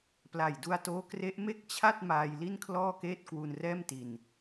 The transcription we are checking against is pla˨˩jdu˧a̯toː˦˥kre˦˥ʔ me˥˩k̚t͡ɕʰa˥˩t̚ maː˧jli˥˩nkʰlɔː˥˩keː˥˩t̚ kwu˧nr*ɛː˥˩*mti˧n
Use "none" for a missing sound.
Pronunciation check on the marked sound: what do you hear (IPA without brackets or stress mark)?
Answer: ɛː˥˩